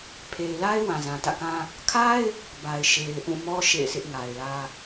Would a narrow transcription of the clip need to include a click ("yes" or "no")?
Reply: no